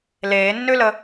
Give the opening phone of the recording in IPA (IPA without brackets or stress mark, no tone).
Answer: l